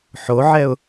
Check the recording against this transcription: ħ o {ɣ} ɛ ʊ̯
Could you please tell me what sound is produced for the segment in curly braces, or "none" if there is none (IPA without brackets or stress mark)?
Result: ʕ